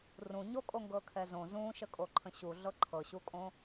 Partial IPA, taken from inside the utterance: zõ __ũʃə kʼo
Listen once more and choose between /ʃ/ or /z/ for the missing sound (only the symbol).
z